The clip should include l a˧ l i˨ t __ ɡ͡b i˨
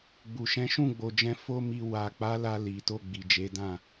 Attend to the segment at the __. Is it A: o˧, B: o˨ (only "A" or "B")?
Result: A